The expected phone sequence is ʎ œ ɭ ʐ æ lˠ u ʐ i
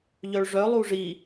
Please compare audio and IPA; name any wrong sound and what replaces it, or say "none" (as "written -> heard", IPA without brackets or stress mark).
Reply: æ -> œ